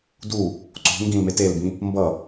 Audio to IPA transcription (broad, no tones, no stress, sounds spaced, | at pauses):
d u | ǀ o̤ ŋ ɡ ĩ l m e t e l b ĩ | m b ʌ